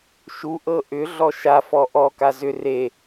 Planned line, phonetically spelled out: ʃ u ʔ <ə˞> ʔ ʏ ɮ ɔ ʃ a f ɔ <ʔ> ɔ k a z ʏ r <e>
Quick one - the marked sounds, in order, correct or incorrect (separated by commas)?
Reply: incorrect, correct, correct